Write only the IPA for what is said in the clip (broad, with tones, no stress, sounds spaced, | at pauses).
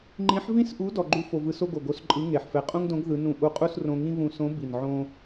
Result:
ŋ͡ǃ ĩ˧˥ ħ v ĩ˥ s ʔ u˧˥ d ɔ˧ ɡ͡ǃ u˥ f o˧ v ɯ˧˥ s o˥ ɡ o˨˩ ɡ o˧˥ s ǃʼ ɯ˧˥ ŋ e˨˩ ħ f ɛ˧ qʼ ũ˥ ŋ d õ˧˥ ɡ ð ɯ˧˥ n ũ˧ ʔ u˧˥ qʼ u˥ s r õ˧ ŋ ĩ˥ β ũ˧ s õ˧˥ b i˨˩ n ʕ õ˥